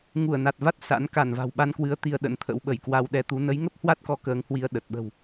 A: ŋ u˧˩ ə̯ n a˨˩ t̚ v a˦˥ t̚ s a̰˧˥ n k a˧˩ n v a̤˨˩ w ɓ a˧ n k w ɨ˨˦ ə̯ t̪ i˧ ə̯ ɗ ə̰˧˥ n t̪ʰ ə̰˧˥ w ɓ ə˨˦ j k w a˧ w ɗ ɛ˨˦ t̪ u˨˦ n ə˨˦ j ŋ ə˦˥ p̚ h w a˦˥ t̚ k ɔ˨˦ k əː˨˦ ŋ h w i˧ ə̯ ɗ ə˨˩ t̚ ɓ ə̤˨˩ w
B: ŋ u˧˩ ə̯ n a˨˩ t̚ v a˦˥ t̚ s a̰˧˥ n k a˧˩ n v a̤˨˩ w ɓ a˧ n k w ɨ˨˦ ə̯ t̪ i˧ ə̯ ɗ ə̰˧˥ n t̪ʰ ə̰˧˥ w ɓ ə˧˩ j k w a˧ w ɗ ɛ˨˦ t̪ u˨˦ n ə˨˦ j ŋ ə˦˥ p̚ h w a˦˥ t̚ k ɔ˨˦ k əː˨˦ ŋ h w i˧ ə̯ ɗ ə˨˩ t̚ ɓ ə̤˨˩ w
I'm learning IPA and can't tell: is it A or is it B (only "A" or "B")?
B